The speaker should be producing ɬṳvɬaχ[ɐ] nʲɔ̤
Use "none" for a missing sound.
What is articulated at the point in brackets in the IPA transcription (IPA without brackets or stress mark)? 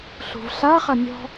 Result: ɐ